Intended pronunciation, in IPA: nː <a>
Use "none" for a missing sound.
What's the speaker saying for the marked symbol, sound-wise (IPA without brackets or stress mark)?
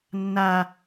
a